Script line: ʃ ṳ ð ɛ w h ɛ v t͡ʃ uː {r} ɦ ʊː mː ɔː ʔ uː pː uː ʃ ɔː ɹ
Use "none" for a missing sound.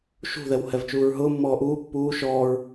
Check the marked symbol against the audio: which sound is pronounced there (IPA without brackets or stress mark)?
ɹ